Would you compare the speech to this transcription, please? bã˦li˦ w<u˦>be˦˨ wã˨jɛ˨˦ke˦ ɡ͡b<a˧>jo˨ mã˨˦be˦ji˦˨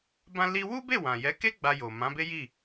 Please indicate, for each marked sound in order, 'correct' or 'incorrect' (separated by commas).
correct, correct